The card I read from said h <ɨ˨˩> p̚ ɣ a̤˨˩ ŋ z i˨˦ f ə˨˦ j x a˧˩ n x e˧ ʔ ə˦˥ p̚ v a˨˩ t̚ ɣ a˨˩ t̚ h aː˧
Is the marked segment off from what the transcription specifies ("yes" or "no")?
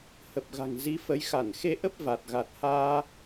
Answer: yes